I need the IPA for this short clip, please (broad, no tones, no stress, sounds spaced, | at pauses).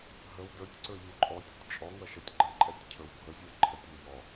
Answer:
ɦ ə w d ə˞ tʲ ǀ ə˞ ʎ u ǃʼ ɔ tʲ ə tʲ t͡ʃʼ ɔ ŋ ʌ ʃ ʌ tʲ ɡ͡ǃ ə ǃʼ ɛ tʲ cʰ ə˞ w bʱ ə zʲ ə˞ ǃʰ ə tʲ ə ʎ ɔ